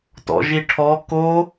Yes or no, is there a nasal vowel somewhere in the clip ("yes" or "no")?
no